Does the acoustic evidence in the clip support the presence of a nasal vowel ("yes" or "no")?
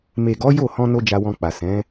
yes